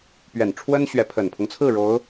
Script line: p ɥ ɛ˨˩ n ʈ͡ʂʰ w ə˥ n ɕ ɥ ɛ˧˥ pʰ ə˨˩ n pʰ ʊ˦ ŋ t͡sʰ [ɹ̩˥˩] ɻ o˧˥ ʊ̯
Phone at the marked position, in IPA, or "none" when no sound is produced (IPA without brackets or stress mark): ɹ̩˥˩